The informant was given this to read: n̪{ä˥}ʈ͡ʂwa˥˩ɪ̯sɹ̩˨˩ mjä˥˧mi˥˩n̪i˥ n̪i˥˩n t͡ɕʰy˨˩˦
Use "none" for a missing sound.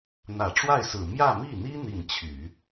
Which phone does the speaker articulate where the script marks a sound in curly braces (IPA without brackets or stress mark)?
ä˨˩